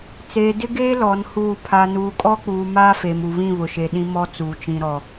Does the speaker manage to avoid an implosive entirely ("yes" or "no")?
no